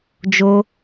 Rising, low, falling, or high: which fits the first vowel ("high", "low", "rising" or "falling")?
high